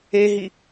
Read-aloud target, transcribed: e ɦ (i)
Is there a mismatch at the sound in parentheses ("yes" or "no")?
no